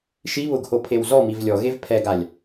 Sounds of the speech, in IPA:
ʃi βʊɡho pʰewzɔmiv lʲɔɣev pʰɛɡalʲ

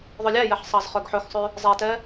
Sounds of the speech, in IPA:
ðˤølʲæjɛħ sˤɑzχœɡħɵxsˤʉ | zˤɛtɛ

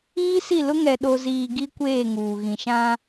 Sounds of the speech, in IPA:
iː˦si˦˨lʊ˦ ŋɛ˨ɗo˨ziː˨ ɡi˦kʷeː˦˨ŋuː˨ ɣĩ˨ʃã˦

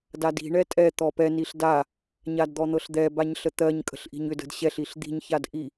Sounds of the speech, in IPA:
dadi̤ ɳɛtʼɛ t̪ɔpɛ niɬda | ɲadd̪ɔn̪ɤɬd̪ɛ baɲɬət̪ɜɲ kʼə̤ɬʔi̤ɲʏd ə̤dɕɛɬ iɬd̪i̤ɲ çadʔi

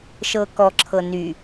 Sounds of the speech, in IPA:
ʃɤːkɔǁʰɤ ny

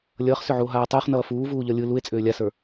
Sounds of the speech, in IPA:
lʲʌːχsʏʕuo̯ɦaː tˤʏːχnʌː fuːvuː ʎʌlʲɯ lue̯t͡sʼʏː lʲasə˞

